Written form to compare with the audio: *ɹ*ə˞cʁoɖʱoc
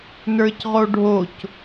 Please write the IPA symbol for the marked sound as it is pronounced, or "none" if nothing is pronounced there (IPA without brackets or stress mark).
n